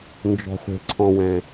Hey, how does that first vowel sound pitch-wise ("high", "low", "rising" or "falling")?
low